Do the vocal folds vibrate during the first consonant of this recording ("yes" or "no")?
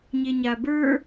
yes